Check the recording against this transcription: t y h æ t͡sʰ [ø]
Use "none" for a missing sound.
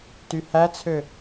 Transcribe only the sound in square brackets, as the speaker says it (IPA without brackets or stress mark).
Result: ø